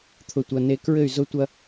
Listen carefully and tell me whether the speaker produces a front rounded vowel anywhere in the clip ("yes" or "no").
yes